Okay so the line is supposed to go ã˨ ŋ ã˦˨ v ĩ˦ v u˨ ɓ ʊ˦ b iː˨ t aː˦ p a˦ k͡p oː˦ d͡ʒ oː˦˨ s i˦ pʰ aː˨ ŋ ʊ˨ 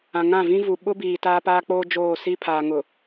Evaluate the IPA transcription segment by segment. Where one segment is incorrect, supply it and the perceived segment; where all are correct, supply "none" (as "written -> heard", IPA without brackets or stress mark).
a˦ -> aː˦